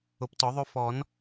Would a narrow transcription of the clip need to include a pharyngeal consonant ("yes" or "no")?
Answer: no